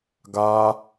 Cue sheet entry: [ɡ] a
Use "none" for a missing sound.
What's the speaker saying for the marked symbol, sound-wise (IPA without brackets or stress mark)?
ɡ